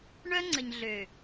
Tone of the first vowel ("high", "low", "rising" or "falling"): high